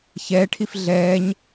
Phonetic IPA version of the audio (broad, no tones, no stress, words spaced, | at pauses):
çɛːʈʰif ɮɛːɲ